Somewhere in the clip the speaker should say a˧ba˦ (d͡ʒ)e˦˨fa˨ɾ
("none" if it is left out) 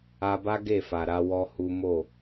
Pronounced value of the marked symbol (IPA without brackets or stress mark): ɡ